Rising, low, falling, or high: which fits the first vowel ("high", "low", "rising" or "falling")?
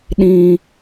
low